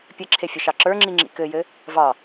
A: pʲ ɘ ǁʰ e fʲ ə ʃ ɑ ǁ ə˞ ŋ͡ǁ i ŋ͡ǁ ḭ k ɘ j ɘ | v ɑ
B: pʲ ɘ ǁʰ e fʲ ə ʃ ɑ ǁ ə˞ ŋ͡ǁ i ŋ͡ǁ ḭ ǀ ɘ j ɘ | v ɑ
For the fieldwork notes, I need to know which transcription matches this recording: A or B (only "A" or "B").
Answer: A